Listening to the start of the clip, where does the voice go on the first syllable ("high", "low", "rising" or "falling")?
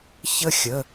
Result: high